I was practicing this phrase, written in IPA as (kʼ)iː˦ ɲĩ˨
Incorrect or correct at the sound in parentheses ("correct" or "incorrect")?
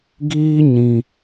incorrect